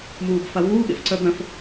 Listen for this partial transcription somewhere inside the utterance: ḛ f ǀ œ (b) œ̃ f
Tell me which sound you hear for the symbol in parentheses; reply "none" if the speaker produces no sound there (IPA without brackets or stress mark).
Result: b